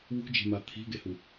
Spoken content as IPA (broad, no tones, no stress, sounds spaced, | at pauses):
w ṳ d͡ʒ e̤ m a t̪ʰ i̤ ɡ e h u